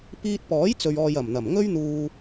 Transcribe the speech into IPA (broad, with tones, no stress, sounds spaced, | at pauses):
p iː˧ t̚ p ɔː˨˥ j t͡s ɵ˨ ɥ ɔː˨ j ɐ˨˩ m n̪ ɐ˨˩ m ŋ ɵ˥ ɥ n̪ uː˧